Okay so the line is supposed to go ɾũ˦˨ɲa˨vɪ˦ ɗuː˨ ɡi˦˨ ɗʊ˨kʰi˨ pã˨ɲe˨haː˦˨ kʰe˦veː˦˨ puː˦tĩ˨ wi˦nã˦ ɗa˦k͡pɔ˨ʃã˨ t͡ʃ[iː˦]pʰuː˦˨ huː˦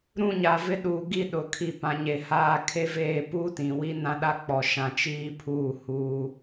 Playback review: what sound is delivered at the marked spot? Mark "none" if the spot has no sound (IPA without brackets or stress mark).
iː˦